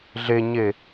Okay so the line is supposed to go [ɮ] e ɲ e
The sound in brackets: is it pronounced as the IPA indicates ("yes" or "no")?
yes